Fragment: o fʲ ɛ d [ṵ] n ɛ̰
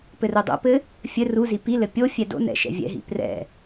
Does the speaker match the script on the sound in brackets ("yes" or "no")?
no